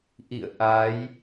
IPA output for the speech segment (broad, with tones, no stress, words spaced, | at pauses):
ʔḭ˧˨ə̯ ʔa˨˦j